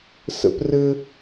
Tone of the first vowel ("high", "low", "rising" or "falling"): high